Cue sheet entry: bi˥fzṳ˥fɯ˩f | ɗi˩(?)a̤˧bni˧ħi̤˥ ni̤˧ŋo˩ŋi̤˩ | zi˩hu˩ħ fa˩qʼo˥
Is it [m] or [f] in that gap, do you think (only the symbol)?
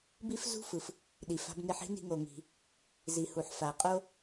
f